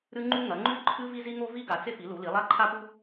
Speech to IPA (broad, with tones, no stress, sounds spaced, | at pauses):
ɾ ɨ˥ ŋ͡ǃ u˥ ŋ ɐ˩˥ ŋ͡ǃ ʉ˥ ǃʰ ɨ˥ v i˥ z i˥ ŋ o˥ v i˥ ɡ a˩˥ t͡s e˥ p i˩˥ l u˩˥ l i˩˥ lˠ a˥ ǃʰ a˥ p u˥